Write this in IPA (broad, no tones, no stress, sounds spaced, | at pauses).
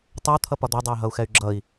tˤ œ t̪ʰ ʌ p ɒ d̪ œ dˤ ɛ y̯ ɦ ʌ u̯ x ɛ y̯ ɡ͡ǁ ʌ i̯